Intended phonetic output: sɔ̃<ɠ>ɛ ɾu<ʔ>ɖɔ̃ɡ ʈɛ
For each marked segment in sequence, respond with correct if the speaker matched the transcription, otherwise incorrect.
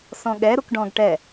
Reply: correct, incorrect: k

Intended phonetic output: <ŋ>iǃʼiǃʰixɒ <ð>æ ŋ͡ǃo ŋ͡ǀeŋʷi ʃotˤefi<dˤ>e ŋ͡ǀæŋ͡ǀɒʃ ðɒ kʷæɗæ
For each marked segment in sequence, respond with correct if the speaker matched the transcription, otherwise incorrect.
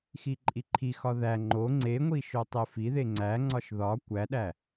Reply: incorrect: x, correct, incorrect: ð

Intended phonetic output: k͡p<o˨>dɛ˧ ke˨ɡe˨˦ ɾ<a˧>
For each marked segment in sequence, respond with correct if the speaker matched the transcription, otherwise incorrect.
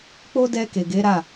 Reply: incorrect: o˦, incorrect: a˦˨

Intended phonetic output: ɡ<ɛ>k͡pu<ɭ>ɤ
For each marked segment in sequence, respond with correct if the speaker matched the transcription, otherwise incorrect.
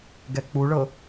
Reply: correct, correct

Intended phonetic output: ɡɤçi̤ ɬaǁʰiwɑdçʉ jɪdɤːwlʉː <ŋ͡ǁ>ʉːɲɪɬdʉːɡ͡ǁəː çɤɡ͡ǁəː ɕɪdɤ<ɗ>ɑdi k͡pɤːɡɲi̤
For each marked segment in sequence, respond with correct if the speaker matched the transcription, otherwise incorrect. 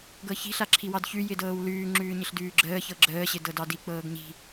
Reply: correct, incorrect: d

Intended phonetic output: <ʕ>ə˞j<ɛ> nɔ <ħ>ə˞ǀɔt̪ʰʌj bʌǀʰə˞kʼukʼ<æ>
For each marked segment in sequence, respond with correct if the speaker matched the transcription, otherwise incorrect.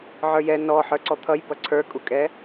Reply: correct, correct, correct, incorrect: ɛ

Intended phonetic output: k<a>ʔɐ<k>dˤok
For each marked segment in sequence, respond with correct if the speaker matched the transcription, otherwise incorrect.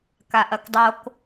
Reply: correct, correct

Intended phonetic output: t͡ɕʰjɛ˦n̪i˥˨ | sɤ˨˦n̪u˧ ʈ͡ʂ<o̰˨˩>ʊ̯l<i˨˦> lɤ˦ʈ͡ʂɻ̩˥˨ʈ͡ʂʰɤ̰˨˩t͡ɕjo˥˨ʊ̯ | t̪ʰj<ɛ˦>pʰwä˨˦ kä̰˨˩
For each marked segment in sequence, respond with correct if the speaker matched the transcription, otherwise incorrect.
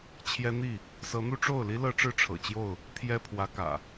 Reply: incorrect: o˥˨, incorrect: i˦, correct

